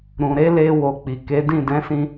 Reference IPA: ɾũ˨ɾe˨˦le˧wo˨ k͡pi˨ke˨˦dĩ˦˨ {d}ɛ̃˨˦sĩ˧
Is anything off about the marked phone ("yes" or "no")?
no